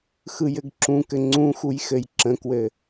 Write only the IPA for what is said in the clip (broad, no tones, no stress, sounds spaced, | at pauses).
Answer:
x ɯ j ɘ ɡ ǁ ũ k ɘ ŋ͡ǀ ũ x u j x ɘ j ǁ ə̃ k w ɘ